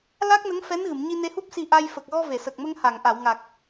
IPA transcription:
l a˦˥ k̚ n ə˧˥ ŋ f ɛ˧˥ n ɣ ɨ˨˩˨ m ɲ i˧ n e˧ h u˦˥ p̚ s i˧ ʔ a˧ j f ə˨˩ k̚ ɣ ɔ˧ v e˨˩˨ s ə˨˩ k̚ m ə˧ ŋ h a˨˩˨ ŋ ʔ a˨˩˨ w ŋ a˨˩ k̚

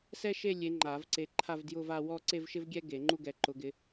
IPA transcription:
s ɛ˥ ʃ e˥˧ lʲ e˨˦ ŋ͡ǃ a˨˩˦ v ǀ e˨˦ ǃʰ a˥˧ v d j ʊ˥˧ v a˥˧ w ɔ˥˧ ǀ e˥˧ v ʃ ɪ˥ v ɡʲ ɛ˥ ɡ e˨˩˦ ŋ͡ǃ u˥˧ ɡ ɛ˨˦ ǃ ʊ˨˦ ɡ ɪ˨˦

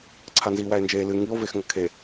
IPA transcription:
ǀʰ a n z iː w æ e̯ n d͡ʒ eː l ɨ ŋ i o̯ v e x ŋ ɐ kʰ e

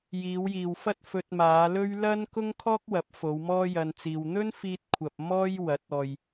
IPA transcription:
j iː˨˧ w j iː˨ w f ɐ˥ t̚ f ɵ˧ t̚ m aː˨˧ l ɵ˥ ɥ l ɐ˥ n k ʊ˥ ŋ kʰ ɔː˥ k̚ w ɐ˨˥ p̚ f o˨˧ w m ɔː˥ j ɐ˧ n t͡s iː˧ w n̪ ɵ˥ n f iː˧ t̚ kʷʰ ɐ˨ p̚ m ɔː˥ j w ɐ˨˥ t̚ ɔː˨ j

